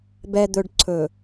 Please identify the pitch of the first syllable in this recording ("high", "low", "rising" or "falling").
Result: low